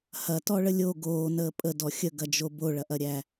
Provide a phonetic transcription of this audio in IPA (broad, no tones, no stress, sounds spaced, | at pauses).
h ɐ t ɔ ɭ ə lʲ o ɡ oː n əː pʼ ə d ɔ xʲ ə ɡ ɐ d͡ʒ o b o ɭ ɐ ʔ ɐ ɾʲ æ